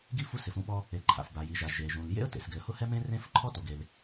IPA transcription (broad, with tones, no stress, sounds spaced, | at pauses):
ɡ i˦ f u˦ s ɪ˩ f ũ˦ ɓ ɔ˦ | e˩ ǃʰ a̰˩ f b a˩ j i˩ ʒ a˩ ʒ e˩ ʒ ũ˩ l j ḛ˦ ə̯ t ḛ˩ s ɡ ɪ˩ ə̯ h ʊ˦ h ɛ˦ m ẽ˦ r ẽ˦ f ǃʰ ɔ˦ t o˩ ɡ e˩ l